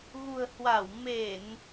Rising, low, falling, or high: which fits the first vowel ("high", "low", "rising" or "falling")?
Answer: low